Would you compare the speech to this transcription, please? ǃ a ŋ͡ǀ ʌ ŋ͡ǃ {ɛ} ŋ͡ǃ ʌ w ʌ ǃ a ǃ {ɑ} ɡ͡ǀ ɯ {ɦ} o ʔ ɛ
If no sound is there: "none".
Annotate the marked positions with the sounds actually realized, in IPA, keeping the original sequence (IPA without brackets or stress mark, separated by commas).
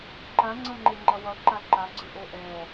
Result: e, a, ʔ